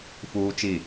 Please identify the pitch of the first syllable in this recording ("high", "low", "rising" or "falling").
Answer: high